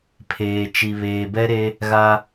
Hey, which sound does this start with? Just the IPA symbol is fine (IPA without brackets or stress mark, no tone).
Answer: pʰ